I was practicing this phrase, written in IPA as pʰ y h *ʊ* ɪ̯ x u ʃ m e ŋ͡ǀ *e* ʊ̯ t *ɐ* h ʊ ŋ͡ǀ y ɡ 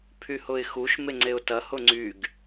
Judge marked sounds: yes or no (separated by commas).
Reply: yes, yes, yes